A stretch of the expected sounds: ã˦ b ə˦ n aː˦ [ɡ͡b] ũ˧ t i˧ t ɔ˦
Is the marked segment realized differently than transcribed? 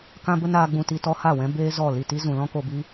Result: no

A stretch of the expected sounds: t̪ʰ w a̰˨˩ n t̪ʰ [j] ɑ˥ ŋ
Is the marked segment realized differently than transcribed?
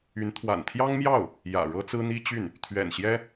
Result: no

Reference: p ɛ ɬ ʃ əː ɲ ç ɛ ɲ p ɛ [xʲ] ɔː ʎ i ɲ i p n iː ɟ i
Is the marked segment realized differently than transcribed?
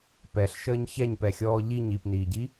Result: no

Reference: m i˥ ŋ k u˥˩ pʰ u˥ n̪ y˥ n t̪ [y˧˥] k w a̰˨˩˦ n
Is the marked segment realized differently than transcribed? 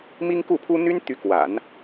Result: no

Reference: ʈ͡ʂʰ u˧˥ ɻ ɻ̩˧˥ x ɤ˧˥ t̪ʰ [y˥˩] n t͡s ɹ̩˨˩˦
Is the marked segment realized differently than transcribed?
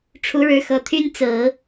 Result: yes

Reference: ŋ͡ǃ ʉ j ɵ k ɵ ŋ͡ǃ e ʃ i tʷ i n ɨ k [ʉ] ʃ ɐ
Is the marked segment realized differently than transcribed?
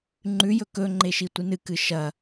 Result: yes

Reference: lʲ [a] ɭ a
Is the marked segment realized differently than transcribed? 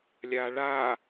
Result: no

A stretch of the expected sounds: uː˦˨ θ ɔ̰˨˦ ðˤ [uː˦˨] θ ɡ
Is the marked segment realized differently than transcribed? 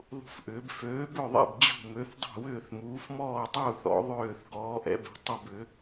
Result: yes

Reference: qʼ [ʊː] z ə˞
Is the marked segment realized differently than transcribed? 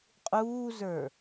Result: yes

